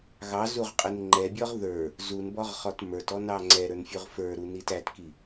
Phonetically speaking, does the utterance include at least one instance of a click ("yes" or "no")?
yes